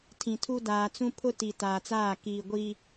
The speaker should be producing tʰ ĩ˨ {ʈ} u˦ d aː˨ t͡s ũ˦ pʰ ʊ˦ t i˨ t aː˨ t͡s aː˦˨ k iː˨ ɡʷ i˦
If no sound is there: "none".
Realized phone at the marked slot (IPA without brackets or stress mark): tʰ